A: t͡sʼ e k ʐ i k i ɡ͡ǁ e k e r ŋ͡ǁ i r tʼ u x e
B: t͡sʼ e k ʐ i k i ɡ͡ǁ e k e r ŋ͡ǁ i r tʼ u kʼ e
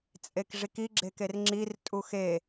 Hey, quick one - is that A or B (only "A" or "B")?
A